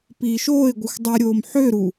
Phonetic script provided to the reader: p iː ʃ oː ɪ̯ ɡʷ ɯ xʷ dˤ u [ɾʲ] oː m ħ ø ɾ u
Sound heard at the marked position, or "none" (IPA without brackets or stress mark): ɾʲ